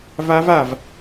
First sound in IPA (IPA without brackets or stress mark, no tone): v